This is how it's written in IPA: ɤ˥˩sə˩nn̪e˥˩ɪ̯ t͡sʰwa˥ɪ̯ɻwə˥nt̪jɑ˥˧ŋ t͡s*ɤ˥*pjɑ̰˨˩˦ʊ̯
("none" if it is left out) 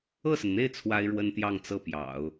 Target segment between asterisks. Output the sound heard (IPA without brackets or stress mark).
ɤ˥˩